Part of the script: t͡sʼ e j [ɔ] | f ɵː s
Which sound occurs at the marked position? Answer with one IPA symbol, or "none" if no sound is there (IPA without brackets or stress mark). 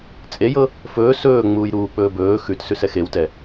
ɤ